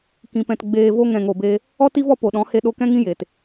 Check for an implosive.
present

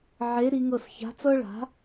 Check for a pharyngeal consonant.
present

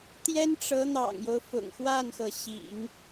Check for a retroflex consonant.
present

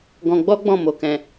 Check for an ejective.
absent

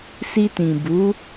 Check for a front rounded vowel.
absent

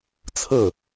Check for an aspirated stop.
present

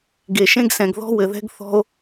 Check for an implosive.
absent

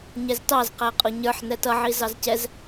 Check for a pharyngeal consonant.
present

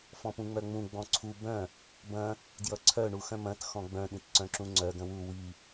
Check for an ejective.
absent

